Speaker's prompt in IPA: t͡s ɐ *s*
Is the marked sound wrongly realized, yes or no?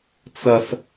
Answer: no